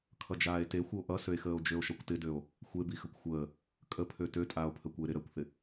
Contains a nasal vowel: no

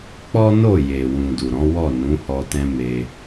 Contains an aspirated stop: no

